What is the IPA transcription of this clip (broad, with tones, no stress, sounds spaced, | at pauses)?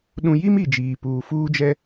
ɗ ũ˨ j i˦ m i˨ d͡ʒ iː˨ p uː˨ f uː˦ d͡ʒ ɛ˦